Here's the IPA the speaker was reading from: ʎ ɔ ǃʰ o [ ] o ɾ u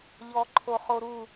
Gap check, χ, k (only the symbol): χ